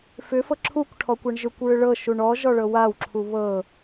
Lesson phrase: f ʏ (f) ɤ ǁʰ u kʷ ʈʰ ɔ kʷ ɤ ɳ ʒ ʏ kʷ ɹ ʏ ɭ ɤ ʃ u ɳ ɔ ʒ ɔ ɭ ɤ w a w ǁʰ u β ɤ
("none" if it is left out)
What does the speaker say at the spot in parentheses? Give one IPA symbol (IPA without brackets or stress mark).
f